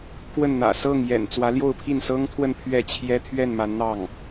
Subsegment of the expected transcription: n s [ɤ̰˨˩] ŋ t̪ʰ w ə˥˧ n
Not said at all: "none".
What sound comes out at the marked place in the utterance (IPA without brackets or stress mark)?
ɤ˥